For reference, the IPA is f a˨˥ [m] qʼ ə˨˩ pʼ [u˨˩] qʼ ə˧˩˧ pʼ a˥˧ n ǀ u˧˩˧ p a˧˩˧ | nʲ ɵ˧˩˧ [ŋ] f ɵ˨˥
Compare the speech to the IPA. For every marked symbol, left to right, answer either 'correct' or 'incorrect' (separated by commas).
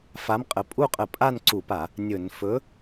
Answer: correct, incorrect, incorrect